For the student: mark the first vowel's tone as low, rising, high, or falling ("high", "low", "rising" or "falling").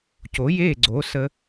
rising